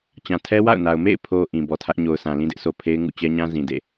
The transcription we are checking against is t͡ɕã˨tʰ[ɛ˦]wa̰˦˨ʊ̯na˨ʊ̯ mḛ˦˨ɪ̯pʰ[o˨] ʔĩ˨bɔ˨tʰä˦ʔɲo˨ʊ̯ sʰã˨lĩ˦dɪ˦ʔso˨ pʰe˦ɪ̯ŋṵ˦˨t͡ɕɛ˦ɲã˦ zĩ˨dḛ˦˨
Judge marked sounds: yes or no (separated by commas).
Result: yes, yes